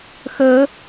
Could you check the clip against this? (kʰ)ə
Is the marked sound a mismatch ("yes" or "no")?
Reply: yes